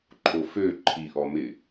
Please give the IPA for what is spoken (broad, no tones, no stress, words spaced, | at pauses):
ǃʰofø ǃʰiʔɔmɪ